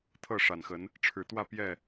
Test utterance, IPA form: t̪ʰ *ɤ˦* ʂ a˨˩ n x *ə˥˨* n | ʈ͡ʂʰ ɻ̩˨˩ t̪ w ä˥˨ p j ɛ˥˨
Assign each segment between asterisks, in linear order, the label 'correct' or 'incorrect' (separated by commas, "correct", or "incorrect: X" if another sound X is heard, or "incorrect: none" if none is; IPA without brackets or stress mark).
incorrect: ɤ˥˨, incorrect: ə˨˦